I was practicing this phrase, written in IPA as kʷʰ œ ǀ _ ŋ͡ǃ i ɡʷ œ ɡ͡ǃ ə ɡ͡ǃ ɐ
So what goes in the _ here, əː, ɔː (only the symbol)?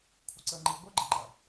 əː